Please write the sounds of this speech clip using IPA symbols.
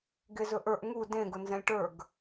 ɡezɵʔə˞ʔ ŋu dẽ ɡʊnzɛ̃lʲʈə˞ɡ

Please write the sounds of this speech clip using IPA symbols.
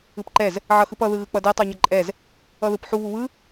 ɯpǃɛz | ʕʌxɯpʌ ðɯɣɯk͡pʌdɛ tˤoɲʌǃʼɛz | ʌðɯpħu βuβɯ

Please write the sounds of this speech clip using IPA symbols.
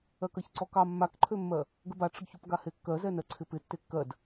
ɜkɜçǀɔkɑ mːakǃʰømːɜ | ɡəbaʈ͡ʂəɡçup ɡahekːɜzɛ nɜǀʰɪpɪ tːekːɜd

